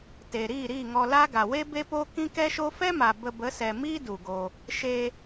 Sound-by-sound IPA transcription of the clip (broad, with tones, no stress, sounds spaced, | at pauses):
t e˨ ɾ iː˦˨ ɾ iː˦˨ ŋ ɔ˧ l a˦ ɡ a˨ w e˦ b e˦ p o˦ k ĩ˦ k ɛ˦ ʃ o˦ f ɛ˦ m a˨ b ə˧ b ə˨˦ s ɛ˨ m iː˦ d u˨ ɡ o˧ | ʃ e˧